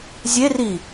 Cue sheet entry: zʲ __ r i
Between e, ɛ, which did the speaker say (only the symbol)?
e